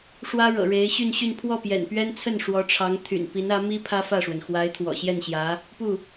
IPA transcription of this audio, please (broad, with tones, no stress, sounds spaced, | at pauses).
ʂ w ä˥ ɻ ɤ̰˨˩ ɻ e˧˥ ɪ̯ ɕ y˥˧ n ɕ y˥˧ n pʰ w ɔ˥˩ p j ɛ̰˨˩ n p ɥ ɛ˥ n t͡sʰ ə˥˩ n ʂ w ɔ˧˥ ʈ͡ʂʰ ɑ˧˥ ŋ t̪ʰ y̰˨˩ n p i˧˥ n ä˧˥ m i˥ pʰ ä˥ f ä˥˩ ʂ w ə˩ n x w a˧˥ ɪ̯ t̪ʰ w ɔ̰˨˩ ɕ j ɛ˥˩ n ɕ j ä˧˥ | p u˥˩